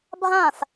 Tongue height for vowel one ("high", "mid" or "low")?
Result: low